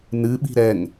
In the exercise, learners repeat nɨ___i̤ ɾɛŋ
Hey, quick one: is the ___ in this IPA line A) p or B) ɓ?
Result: B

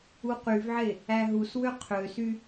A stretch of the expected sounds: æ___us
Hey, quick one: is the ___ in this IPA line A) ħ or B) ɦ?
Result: B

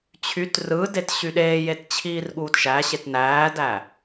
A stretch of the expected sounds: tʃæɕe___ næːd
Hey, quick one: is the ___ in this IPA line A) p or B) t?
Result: B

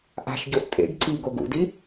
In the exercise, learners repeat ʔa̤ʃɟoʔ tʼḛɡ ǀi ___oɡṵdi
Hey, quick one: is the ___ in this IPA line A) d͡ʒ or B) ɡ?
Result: B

